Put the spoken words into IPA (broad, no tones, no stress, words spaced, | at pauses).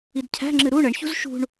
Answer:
idcʰæ̤ŋ͡ǁɨ ɾu ɳəɳçṳz ʃṳɳ